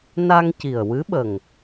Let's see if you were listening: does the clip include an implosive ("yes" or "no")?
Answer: yes